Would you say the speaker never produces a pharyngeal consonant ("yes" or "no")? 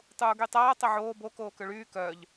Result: no